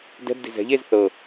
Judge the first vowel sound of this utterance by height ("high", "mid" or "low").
mid